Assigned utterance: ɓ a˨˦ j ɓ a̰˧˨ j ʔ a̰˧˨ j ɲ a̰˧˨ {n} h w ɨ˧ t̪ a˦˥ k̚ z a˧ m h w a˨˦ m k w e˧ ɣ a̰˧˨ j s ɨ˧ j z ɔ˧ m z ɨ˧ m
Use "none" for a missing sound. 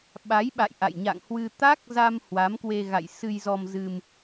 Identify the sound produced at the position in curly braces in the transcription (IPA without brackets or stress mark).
ŋ